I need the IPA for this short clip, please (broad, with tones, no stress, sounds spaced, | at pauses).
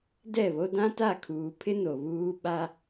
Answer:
d ɛ˦˨ β o˦ d ã˦ t a˦˨ kʰ uː˨ pʰ ɪ˦ n o˨ β uː˦ ɓ a˦